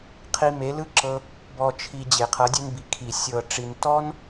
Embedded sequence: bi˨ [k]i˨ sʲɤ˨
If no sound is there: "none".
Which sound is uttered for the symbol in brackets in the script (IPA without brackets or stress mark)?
kʰ